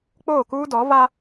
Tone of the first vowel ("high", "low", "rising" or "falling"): falling